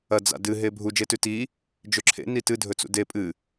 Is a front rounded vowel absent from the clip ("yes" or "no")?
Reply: yes